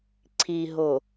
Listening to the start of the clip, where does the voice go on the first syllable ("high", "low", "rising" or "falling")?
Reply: low